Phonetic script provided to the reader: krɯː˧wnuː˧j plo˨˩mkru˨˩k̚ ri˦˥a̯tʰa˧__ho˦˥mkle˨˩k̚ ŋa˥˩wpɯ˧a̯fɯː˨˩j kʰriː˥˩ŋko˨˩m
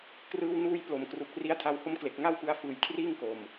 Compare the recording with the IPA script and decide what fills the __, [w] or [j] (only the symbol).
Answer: w